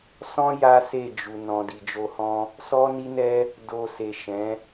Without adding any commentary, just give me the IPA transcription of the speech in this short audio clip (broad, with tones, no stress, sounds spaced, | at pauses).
s ɔ̃˦ j a˦ s e˦˨ d͡ʒ u˨ n ɔ̃˨ d i˨ d͡ʒ o˧ h ɔ̃˦ | s ɔ˦ n i˦ n ɛ˦ | d o˧ s e˨ ʃ ɛ̃˨˦